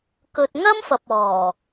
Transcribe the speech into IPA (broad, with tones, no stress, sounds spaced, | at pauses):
k ɵ˧ t̚ ŋ ɐ˥ m f ɐ˨ p̚ ɔː˨˩